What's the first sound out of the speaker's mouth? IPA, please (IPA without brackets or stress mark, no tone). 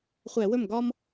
χʷ